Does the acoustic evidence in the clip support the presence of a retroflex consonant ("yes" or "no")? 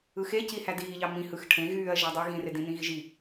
yes